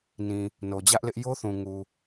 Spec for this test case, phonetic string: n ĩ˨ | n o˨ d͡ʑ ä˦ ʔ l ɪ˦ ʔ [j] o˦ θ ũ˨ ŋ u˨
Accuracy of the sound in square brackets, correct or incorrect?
correct